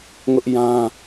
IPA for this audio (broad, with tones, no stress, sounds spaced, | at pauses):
ŋ ʊ˦ ʔ j ã˦